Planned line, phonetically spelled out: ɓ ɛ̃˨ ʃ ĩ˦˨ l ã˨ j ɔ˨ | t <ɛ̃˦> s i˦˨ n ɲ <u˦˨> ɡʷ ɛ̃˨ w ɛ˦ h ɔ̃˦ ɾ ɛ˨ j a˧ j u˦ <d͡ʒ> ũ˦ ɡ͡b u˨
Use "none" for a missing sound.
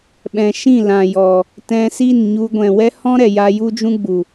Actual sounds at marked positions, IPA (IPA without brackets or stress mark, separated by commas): ɛ̃˧, u˧, d͡ʒ